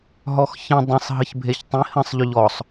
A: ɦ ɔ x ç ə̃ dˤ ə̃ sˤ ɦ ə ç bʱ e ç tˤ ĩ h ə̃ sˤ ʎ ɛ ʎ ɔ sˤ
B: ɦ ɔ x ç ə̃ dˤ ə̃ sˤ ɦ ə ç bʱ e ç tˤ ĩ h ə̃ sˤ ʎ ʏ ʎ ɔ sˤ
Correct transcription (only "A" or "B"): B